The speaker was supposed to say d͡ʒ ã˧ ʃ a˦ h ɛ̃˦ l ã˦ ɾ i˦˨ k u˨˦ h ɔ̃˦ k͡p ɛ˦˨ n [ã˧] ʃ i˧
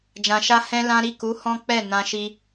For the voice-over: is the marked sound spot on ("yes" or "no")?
yes